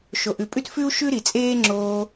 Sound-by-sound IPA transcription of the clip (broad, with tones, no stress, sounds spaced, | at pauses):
ʃ o˨ ʔ ʉ˨ pʼ ʉ˦ t f ʉ˦ u̯ ʃ ʉ˦ ɾ i˨ t͡sʼ eː˦ ŋ͡ǁ oː˧